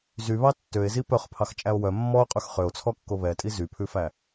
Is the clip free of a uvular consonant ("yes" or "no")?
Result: no